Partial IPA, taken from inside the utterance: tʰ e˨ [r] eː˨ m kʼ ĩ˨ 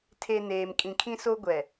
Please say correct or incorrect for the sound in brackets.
incorrect